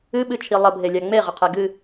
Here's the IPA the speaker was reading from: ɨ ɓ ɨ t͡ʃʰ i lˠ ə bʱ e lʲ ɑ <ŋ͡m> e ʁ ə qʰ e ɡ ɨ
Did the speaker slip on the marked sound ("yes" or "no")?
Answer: no